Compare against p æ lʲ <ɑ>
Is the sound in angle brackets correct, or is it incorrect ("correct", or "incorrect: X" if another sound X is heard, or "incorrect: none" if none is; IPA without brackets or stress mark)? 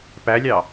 correct